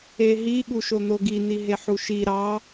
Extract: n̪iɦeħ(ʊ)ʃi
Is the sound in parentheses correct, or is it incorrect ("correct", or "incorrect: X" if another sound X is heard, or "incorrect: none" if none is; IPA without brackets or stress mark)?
incorrect: u